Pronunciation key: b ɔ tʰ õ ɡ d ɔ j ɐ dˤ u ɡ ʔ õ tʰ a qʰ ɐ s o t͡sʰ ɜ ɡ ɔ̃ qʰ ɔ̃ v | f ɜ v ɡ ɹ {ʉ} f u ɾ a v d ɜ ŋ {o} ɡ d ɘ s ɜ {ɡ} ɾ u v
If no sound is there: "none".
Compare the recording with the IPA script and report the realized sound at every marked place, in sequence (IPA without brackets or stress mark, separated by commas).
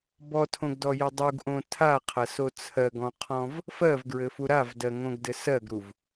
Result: ɘ, õ, ɡ